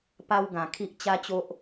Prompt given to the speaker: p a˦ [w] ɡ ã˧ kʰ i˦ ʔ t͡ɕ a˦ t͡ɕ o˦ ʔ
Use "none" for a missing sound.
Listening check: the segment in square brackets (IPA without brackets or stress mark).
w